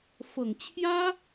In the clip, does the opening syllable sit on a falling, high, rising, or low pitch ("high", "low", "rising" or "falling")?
low